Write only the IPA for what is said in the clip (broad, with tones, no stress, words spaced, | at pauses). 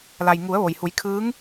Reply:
la˩j ŋu˩˧ə̯ʋo˩jhu˩˧jkʰɯː˧˥ŋ